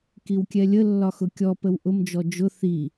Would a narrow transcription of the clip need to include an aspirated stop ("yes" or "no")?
no